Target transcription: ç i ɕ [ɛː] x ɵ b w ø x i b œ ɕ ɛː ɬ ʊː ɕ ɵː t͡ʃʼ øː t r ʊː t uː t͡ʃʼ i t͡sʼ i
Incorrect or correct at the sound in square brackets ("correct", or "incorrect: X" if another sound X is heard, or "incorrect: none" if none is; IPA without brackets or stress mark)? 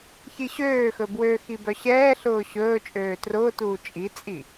incorrect: øː